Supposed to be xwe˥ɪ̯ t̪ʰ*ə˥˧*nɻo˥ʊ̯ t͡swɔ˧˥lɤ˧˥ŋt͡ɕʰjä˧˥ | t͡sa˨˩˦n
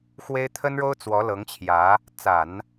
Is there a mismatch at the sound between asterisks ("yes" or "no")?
yes